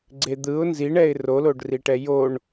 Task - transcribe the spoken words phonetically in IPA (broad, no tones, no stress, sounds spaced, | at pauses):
ɡ͡ǀ e d̪ ɯ ʊ̯ n z i ɳ ɛ ɪ̯ r o l o ɖ r i ʈ ɛ j o ɳ